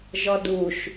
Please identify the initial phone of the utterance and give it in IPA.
ʒ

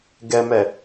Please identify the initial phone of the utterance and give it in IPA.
ɡ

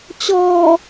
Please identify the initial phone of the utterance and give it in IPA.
t͡ɕ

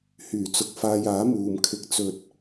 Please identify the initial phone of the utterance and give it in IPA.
h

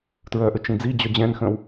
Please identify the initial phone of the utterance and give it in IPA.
t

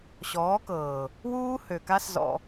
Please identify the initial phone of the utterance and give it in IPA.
ɕ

